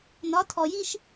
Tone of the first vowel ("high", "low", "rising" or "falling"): rising